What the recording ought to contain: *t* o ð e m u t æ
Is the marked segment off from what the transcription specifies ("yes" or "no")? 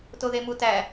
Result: no